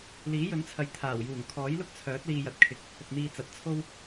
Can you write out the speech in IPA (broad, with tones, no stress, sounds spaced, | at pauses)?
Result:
l iː˨˥ j ɵ˨˥ n t͡sʰ ɐ˨ j t̪ʰ aː˨˩ w j uː˨˩ ŋ kʰ ɔː˨˥ j l ʊ˥ k̚ t͡sʰ œː˨˥ t̚ l iː˧ j ɐ˨ t̚ kʰ ɪ˨˥ k̚ | p ʊ˨ k̚ n̪ iː˧ t͡s ɐ˨ t̚ t͡sʰ o˥ w